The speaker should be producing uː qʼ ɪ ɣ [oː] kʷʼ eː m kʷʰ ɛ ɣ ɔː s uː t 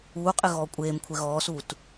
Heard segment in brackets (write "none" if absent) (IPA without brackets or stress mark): ɔː